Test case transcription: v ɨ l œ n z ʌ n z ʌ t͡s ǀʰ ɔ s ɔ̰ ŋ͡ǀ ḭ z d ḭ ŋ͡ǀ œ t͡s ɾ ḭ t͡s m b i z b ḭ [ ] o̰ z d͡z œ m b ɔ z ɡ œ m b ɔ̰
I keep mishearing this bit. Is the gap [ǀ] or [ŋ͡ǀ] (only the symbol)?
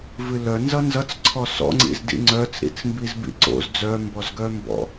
ǀ